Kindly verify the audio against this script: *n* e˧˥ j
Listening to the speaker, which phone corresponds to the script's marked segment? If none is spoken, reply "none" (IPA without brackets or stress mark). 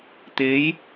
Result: t̪